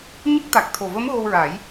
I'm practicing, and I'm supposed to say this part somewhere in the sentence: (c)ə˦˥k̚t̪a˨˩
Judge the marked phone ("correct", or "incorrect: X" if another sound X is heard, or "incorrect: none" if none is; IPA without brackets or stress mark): incorrect: ɲ